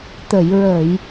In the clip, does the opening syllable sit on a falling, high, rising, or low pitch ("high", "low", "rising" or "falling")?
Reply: low